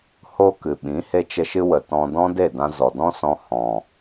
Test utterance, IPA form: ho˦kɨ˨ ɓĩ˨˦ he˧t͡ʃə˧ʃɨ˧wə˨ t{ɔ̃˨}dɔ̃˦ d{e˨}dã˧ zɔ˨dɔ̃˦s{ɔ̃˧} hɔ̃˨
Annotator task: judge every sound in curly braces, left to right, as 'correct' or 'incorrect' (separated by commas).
incorrect, incorrect, correct